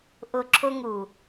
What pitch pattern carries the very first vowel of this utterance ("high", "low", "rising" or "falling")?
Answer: low